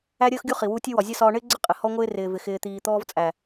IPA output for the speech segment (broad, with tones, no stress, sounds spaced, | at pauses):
æ˦ ɾʲ əː˦ x ɡʲ u˦ χ i˨ w u˧ tʲ ʊ˦ w ɒ˨ zʲ ʌ˦ s ɒː˧ ɳ ɪː˦ ɡ͡ǀ ə˦˨ qʼ ɪ˨ h ɔ˦ ŋʷ ɪː˦ r ɪː˨ v ɪ˨ x ɪː˨ t̪ iː˨ t̪ ɔː˧ v t͡sʼ æ˨